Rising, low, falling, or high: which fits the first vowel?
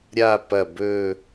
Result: falling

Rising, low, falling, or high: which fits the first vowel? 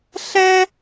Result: high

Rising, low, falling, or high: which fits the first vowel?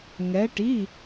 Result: rising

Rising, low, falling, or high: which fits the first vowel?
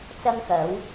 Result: high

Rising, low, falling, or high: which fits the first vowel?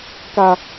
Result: high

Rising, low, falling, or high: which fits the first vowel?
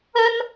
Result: high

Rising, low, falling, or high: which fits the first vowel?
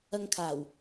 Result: high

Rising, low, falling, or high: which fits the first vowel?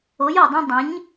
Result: rising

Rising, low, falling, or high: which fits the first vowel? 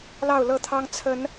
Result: falling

